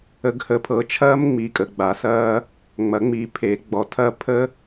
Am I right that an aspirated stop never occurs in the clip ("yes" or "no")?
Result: no